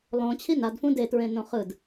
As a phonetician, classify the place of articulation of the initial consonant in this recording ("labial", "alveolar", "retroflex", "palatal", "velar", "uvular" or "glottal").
alveolar